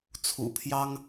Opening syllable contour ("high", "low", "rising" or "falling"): low